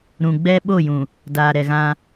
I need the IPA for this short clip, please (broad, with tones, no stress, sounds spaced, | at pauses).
ɾ ũ˨ ɡ͡b ɛ˦ ɓ o˦˨ j ũ˨ | d aː˨ ɾ ɛ˨ ɣ ã˦